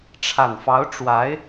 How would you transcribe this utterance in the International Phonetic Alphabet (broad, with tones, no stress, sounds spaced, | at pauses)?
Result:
ʈ͡ʂʰ a˨˩ n f ɑ˧˥ ʊ̯ ʈ͡ʂ w a˧˥ ɪ̯